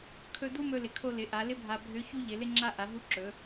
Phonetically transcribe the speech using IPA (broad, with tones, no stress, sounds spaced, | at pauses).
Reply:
kʰ ɵ˧ d u˥ m ɵ˧ l ɪ˩ kʰ o˧ l ɪ˩˧ ʔ a˩˧ l ɪ˥ bʱ a˧ bʱ ø˧˥ ç u˥ ʎ ɪ˩˧ l ɪ˥ ŋ͡ǁ a˥ ʔ a˩˧ ɦ u˧˥ ǁ ɵ˩˧